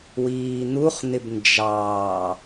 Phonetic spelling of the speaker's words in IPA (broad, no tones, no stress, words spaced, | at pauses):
wiːn̪uχ n̪ɪbnd͡ʒɑː